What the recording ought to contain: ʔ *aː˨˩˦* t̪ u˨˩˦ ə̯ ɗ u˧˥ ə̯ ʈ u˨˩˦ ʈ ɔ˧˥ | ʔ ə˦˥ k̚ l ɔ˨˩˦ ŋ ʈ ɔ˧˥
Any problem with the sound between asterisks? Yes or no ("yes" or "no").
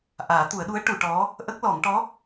no